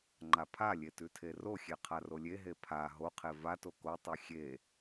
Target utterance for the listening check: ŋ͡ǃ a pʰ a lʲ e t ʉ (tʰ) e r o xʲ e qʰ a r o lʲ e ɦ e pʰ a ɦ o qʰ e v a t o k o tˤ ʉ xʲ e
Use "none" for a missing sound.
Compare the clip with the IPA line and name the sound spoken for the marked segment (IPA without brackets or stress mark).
tʰ